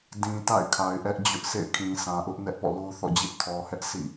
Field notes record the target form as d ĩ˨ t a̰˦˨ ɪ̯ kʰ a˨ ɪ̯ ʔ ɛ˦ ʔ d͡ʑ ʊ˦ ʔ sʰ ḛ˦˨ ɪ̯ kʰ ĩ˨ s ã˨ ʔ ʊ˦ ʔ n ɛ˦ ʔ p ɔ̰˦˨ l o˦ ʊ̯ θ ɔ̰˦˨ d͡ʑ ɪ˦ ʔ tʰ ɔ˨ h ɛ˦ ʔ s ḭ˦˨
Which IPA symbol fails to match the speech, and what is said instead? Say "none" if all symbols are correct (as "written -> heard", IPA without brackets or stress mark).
none